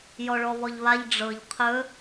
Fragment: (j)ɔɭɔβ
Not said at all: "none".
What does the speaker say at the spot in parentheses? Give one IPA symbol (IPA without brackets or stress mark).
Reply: j